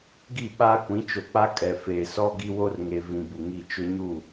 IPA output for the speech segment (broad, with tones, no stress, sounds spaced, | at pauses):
ɡ i˦˨ ɓ a˦ kʷ ĩ˨˦ t͡ʃ o˨ k͡p a˦ kʼ ɛ˨ f eː˨ s ɔ˦ ɡ i˦ w o˦ r ŋ e˨ v ĩ˨ b u˨ ŋ i˦˨ t͡ʃ ʊ˦ ɲ u˦˨